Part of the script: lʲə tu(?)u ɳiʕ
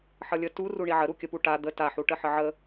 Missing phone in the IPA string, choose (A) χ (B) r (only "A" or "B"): B